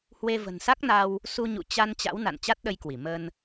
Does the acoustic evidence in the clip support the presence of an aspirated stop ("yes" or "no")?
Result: no